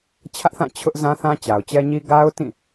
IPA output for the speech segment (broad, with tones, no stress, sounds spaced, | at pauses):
t͡ɕʰ ä˦ ʔ θ ã˦˨ t͡ɕʰ ʊ˦ ʔ z ã˦ θ ã˦ t͡ɕ a˨ ʊ̯ t͡ɕ ɛ˦ ɲ i˦ ɡ a˦ ʊ̯ t ĩ˦˨